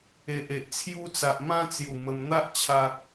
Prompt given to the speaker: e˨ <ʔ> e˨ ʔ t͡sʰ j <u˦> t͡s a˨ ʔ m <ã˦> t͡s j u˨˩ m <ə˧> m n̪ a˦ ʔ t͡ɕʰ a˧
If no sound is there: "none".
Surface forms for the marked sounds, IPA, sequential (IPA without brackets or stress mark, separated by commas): ʔ, u˦, ã˦, ə˧